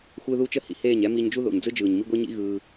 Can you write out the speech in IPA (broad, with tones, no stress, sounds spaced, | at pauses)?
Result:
xʷ ɯː˦ ð uː˦ t͡ʃ ə˧ h ḭ˨ h eː˦˨ ɲ ɛ˦ m i˧ ɲ d͡ʒ u˦ ð o̰˨ ɲ d͡z ɯ˦ d͡ʒ ɯː˨ ɲ m i˦ ɡʷ i˦ ɲ ḭ˦ ɣ ɯː˧